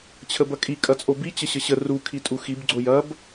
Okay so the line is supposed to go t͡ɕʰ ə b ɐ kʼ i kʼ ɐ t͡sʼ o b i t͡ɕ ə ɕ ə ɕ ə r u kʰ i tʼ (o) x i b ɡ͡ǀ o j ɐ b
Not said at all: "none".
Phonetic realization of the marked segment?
u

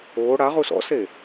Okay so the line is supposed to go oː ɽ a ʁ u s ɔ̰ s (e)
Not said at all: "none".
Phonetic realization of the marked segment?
e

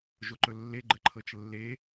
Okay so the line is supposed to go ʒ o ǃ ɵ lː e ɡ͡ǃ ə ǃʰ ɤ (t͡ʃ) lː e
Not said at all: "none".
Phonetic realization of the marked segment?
t͡ʃ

